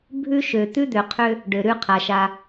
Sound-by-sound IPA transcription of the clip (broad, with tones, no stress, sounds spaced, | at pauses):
bʱ ʉ˦ ʃ ø˨ t̪ ʉ˦ d̪ ø˨ qʰ ø˦ | ɖ ø˨ ɾ ʉ˦ qʰ a˨ ʃ a˦